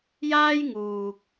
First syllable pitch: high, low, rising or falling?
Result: high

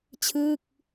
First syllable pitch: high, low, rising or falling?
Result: falling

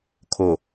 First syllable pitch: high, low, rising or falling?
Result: low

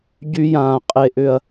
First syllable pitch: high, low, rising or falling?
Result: high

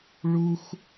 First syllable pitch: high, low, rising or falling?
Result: high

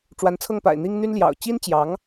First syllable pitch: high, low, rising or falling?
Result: rising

